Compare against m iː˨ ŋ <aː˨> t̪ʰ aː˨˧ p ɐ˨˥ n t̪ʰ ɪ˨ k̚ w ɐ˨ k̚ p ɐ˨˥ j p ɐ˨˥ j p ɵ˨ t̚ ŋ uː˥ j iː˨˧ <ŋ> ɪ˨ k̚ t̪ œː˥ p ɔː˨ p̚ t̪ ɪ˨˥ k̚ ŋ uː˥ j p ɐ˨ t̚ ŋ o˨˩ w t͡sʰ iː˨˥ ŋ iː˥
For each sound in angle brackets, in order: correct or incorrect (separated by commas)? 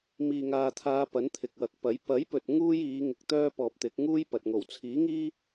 correct, correct